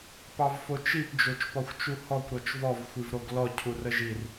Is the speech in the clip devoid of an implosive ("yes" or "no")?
yes